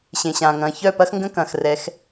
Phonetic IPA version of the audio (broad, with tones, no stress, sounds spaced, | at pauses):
ɕ ẽ˨ ɕ ãː˨ ŋ ɐ̃ː˨ ç œ˦˨ p ɐ˦ x ŋ ɡ ə̃˦ k ɐ̃ː˨ x r ɛ˨˦ x